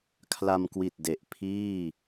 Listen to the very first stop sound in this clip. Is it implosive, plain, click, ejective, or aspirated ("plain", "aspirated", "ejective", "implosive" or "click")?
aspirated